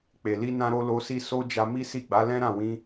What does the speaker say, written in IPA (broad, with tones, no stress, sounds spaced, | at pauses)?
k͡p e˨ l i˧ n ã˧ ɾ o˧ l o˧ s i˧ s o˦ d͡ʒ a˧ m i˦ s i˦˨ ɡ͡b a˨˦ l ɛ̃˦ ɾ ã˦˨ w ĩ˧